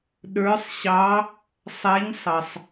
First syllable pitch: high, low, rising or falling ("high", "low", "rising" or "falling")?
rising